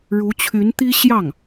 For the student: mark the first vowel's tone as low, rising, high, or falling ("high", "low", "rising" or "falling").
rising